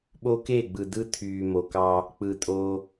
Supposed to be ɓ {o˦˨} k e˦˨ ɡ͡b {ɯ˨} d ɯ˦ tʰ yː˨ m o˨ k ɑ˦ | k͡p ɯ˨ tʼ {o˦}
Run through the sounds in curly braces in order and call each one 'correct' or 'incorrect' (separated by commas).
incorrect, correct, correct